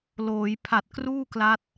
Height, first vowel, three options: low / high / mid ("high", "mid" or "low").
mid